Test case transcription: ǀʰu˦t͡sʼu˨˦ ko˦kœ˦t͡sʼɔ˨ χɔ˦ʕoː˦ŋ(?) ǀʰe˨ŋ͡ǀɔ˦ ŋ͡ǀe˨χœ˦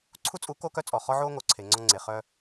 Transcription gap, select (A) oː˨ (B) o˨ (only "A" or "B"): B